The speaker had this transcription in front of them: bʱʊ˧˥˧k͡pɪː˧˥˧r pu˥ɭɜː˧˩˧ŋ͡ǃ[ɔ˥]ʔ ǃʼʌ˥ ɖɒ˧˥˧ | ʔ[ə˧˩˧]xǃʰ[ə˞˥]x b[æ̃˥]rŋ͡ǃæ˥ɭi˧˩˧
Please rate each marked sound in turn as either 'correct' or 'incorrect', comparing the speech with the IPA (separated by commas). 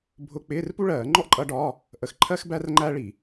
correct, correct, incorrect, incorrect